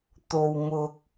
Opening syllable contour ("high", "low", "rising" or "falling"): low